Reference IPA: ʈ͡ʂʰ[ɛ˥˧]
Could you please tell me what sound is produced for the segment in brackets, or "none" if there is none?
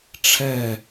ɛ˥˧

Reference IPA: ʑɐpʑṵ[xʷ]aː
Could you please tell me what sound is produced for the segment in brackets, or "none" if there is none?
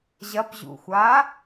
xʷ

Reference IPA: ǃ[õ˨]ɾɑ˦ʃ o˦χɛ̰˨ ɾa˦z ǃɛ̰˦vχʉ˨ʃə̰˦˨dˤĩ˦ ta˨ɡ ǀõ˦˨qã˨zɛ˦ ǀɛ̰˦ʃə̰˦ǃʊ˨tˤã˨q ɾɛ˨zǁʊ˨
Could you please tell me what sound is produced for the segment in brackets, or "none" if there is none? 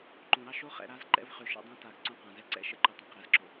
õ˨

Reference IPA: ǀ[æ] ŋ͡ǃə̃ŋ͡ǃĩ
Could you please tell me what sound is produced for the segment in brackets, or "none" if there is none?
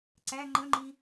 æ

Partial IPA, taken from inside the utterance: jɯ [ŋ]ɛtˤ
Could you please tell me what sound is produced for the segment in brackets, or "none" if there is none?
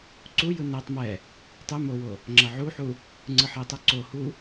n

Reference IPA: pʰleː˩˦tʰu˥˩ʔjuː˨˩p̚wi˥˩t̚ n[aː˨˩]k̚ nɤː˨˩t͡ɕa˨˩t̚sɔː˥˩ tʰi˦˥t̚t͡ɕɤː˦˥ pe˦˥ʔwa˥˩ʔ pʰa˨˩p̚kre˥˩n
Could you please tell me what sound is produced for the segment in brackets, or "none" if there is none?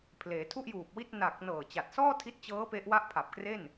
a˨˩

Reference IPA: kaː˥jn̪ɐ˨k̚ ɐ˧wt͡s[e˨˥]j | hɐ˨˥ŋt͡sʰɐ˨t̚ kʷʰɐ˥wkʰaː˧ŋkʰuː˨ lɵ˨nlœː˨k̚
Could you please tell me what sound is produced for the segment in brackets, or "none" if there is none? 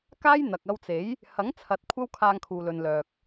e˨˥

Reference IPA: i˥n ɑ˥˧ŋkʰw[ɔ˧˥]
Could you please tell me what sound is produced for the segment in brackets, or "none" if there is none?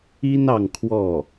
ɔ˥˩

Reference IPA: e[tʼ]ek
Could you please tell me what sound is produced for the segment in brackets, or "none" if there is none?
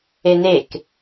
n̪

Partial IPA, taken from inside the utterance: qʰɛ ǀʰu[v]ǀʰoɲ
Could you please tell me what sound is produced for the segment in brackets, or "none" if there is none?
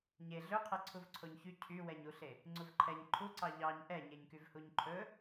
v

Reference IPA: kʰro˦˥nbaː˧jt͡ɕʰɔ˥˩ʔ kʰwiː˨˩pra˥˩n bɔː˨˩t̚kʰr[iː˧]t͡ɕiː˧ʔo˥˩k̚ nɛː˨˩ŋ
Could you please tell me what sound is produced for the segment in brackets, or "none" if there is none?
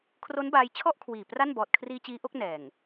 iː˧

